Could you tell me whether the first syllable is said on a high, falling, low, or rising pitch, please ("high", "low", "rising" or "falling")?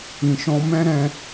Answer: low